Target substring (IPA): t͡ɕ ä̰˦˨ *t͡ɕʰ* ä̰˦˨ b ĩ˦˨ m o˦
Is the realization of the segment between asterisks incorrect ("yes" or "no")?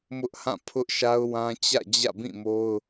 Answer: yes